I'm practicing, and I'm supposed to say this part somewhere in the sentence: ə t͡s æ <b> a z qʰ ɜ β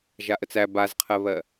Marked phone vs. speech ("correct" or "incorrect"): correct